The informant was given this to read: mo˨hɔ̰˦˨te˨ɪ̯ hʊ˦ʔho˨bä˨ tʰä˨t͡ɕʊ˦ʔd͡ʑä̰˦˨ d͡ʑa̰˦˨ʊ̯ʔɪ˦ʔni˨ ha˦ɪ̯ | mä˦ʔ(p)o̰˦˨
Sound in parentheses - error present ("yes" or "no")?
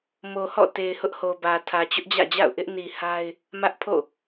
yes